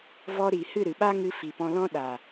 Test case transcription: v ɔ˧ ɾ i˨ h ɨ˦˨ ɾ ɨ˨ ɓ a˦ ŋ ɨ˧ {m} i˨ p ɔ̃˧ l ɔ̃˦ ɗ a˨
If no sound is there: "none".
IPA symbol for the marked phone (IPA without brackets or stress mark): f